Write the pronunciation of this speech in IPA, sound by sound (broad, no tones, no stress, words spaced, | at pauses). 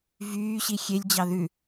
vyːɕi xʲelʲd͡ʑɑ ðʉ